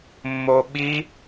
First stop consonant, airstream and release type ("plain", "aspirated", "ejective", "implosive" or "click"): implosive